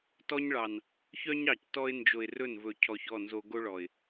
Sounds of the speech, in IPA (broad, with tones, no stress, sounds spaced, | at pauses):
t ɔ˦ ɲ ɭ ɑ˨ n | ç œ˦ ɲ ɑ˨ c t ɔ˦ ɪ̯ n d͡ʒ o˨ ɪ̯ r ɵ˦˨ n v ɵ˨ cʰ ɔ˨ ç ɔ˦˨ n z o˦ ɡ o˦ ɭ ɔ˨ ɪ̯